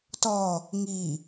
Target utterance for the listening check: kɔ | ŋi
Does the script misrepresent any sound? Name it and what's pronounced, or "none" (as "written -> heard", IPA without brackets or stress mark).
k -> t